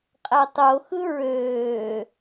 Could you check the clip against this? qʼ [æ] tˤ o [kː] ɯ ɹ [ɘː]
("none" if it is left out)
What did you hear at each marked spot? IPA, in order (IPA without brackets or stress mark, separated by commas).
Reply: æ, x, øː